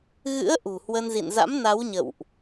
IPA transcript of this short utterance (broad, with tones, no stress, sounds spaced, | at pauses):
ɣ ɨ̰˧˥ ə̯ ʔ ṳ˨˩ h w ə˧ n z ḭ˧˨ n z a̰˧˥ m n a˨˦ w ɲ ə̰˧˨ w ʔ